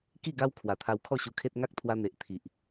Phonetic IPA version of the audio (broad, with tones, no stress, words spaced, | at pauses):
ki˥˧ɡa˦w kʰwa˨˩t̪ʰa˧w kʰɔ˥˧ɕu˧kʰe˦t̚ ŋa˦k̚t̪ʰwa˧n̪e˨ʔ t̪ʰi˨ʔ